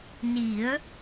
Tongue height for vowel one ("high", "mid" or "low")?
high